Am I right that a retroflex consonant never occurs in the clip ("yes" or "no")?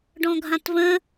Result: no